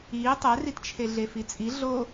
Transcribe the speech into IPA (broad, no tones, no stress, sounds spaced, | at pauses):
iː tˤ ɛ r i t t͡ʃʰ e ɮ e f i t͡sʼ i ɮ o